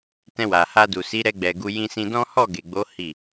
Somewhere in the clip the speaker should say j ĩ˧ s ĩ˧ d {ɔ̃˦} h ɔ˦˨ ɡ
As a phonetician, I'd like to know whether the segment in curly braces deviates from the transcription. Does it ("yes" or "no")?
no